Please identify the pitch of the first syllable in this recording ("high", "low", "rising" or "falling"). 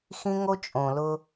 high